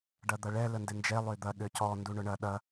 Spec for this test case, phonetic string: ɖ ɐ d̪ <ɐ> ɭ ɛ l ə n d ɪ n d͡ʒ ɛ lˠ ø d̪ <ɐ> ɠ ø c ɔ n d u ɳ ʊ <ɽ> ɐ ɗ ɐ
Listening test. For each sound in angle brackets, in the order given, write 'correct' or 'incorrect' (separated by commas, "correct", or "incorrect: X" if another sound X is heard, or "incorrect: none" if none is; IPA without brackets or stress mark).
correct, correct, incorrect: ɳ